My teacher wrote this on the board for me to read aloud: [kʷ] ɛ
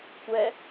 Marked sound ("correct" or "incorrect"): correct